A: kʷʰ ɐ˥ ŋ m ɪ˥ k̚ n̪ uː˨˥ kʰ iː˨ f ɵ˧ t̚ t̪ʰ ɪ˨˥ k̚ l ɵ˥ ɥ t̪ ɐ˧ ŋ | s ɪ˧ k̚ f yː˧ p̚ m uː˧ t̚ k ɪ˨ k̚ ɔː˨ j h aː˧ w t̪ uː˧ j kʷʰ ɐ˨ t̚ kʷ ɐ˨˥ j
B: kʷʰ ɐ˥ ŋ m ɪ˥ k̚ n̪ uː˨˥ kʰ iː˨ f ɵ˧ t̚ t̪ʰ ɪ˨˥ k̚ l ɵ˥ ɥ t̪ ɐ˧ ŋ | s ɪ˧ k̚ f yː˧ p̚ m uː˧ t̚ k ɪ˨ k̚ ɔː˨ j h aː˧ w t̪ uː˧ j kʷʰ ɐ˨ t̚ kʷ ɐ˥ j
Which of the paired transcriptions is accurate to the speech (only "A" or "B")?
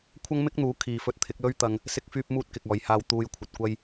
B